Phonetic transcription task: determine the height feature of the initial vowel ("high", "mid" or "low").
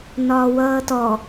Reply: low